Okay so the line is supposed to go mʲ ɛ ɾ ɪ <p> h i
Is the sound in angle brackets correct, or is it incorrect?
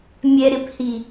correct